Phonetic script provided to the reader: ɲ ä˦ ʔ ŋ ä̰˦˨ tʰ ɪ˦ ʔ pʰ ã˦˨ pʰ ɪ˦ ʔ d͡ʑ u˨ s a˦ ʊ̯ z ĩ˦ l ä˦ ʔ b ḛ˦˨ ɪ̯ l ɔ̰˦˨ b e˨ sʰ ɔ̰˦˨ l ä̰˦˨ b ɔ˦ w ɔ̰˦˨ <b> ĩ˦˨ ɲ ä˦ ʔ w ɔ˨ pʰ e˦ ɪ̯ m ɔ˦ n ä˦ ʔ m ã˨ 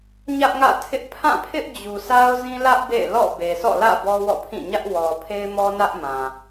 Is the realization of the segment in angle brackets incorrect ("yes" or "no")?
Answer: yes